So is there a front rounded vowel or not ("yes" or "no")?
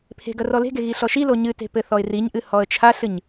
no